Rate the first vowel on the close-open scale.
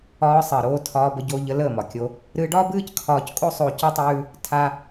open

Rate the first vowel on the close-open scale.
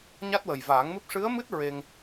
open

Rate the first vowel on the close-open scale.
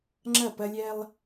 open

